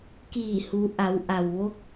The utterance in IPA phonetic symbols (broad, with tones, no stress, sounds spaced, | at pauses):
k iː˧˩ h u˩˧ ʔ a˩˧ w ʔ a˩ w ʋ o˧˥ k̚